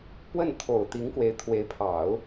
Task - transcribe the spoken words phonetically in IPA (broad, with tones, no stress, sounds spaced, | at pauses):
p w ə˥˩ n t̪ʰ o˨˩ ʊ̯ t̪ i˧˥ ŋ k w e˧˥ ɪ̯ t̪ʰ w e˧˥ ɪ̯ pʰ ɑ˨˩˦ ʊ̯